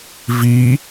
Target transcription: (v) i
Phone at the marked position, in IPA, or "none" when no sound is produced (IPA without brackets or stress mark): v